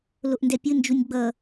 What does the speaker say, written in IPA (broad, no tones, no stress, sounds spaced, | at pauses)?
l o ʔ n d ɛ pʲ ɯ n d͡ʒ u nʲ ɡ͡b ʌ